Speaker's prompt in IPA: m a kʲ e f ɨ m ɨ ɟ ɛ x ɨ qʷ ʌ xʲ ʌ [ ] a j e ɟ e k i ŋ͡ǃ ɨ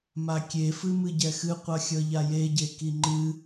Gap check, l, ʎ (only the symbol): ʎ